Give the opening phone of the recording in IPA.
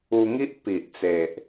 u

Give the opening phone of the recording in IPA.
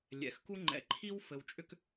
lʲ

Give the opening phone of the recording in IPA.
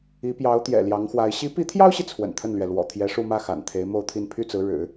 i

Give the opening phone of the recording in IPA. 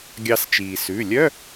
ɡʲ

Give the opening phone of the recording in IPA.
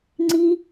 ŋ͡ǀ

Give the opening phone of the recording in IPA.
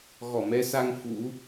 ɣ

